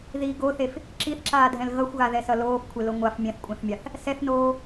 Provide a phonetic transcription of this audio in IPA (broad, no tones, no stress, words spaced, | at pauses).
ði ɡoθef | ǁiθǁaːdʱɛ̃l ɣʌxʷɣaðɛsʌ loːfkʷʰelo ŋʷaf mʲɛ̃θkʷʼɛ̃θmʲaθ | sɛθnoː